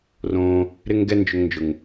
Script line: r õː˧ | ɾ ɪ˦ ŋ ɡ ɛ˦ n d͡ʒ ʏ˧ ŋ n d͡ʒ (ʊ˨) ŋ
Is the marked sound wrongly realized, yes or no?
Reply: no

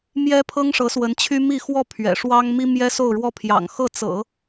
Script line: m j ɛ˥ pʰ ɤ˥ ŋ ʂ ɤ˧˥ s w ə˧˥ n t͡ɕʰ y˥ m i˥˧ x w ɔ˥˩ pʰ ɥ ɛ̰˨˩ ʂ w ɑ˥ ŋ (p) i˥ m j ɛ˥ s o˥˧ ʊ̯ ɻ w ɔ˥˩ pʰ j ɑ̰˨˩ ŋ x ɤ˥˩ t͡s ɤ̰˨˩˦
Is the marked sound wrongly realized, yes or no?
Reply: yes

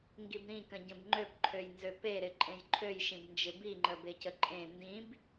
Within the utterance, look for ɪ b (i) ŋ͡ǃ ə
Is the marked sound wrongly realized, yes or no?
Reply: no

